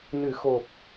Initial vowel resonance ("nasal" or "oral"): oral